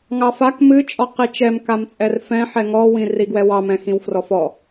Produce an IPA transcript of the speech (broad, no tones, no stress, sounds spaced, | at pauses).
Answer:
ŋ ɑ f a k m ɨ t͡ʃʼ ɔ q i t͡ʃ ɛ m k a m t͡sʼ ɛ r f ɛ̃ ħ ɛ ŋ ɔ w ĩ r i ɡ w ɛ w ɑ m ɛ̃ x ĩ w f r ɔ f ɔ